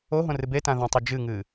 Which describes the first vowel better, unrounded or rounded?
rounded